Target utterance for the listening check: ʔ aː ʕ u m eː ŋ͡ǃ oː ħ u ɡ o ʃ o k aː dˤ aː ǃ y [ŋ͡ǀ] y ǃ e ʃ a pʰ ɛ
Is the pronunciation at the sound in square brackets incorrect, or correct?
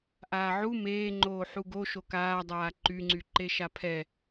correct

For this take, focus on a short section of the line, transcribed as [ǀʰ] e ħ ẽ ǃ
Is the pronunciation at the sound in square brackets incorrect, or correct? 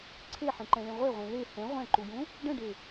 correct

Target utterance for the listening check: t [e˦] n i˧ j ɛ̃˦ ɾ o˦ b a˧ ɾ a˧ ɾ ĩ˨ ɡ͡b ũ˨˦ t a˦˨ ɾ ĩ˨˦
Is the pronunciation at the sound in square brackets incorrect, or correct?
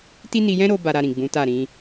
incorrect: i˦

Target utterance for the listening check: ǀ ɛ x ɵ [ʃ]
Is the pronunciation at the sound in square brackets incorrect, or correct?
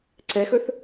incorrect: θ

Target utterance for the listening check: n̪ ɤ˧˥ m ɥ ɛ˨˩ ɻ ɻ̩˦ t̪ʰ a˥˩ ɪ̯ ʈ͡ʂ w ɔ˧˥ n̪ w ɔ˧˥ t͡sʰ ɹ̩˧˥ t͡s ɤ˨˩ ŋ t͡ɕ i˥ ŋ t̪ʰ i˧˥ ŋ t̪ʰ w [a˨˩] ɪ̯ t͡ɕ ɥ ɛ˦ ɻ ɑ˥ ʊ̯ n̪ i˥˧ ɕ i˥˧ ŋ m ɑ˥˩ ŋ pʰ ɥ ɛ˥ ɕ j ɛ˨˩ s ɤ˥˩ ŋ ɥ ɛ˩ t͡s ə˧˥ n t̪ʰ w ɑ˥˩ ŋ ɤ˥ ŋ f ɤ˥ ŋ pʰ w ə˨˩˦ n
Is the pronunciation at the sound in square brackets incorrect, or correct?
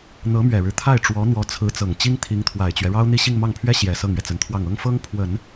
correct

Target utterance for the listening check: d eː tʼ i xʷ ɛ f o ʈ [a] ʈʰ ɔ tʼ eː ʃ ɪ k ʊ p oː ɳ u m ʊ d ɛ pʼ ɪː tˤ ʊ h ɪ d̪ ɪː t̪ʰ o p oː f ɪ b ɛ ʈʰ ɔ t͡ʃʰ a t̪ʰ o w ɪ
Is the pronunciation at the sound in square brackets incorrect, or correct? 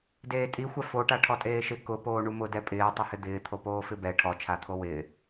correct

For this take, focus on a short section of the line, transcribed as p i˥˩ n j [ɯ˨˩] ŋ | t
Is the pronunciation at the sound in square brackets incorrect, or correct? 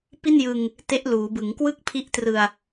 incorrect: ɯ˧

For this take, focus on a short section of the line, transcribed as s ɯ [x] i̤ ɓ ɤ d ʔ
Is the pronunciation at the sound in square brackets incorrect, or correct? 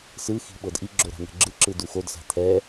correct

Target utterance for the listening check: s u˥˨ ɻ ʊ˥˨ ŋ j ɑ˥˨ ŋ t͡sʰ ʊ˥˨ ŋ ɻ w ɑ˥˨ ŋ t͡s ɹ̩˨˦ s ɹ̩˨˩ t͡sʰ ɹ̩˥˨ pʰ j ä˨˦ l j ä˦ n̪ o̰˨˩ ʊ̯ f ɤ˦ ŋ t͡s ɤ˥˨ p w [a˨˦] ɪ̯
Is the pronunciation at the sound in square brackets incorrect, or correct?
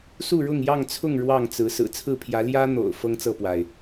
incorrect: a˩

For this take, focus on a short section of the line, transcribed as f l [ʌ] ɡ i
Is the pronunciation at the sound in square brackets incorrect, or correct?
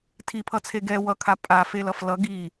correct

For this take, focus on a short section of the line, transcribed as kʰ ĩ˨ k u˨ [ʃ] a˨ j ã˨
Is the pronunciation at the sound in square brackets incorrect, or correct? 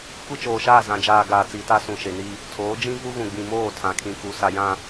incorrect: s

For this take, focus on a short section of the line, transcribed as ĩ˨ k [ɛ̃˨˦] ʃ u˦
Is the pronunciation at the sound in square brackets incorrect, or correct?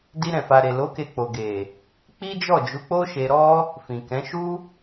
correct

